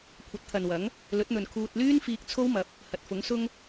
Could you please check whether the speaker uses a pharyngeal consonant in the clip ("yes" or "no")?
no